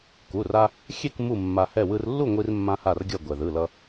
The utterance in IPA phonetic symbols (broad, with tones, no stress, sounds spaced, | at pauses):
k u˩˧˩ r a˧ | xʲ e˥˨ k m u˥˨ mː a˧ h ɛ˥˨ w ɯ˧ r lː u˥˨ ŋʷ i˧ r mː ã˧ h a˧˩ r ɡʲ ʌ˧˩ ɡʷ ɛ˩ ð ɯ˩˧˩ l ʌ˧